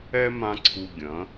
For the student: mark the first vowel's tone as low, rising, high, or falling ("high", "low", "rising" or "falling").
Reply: high